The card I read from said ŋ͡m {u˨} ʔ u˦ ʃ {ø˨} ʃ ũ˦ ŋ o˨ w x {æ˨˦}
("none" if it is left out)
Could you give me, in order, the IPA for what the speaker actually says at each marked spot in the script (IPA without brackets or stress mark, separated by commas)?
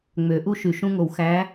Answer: ø˨, y˨, æ˨˦